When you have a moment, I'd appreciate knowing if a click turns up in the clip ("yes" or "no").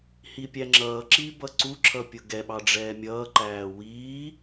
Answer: yes